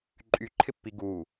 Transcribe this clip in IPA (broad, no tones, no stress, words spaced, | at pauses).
ǃʼyǃʰɪpːi ɡu